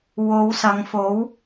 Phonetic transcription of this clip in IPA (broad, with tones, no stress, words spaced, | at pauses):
wo˨˧wsɐ˨˧ŋfo˨˥w